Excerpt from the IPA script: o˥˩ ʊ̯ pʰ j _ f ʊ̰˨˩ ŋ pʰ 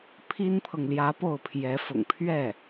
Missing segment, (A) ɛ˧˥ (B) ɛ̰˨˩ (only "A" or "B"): A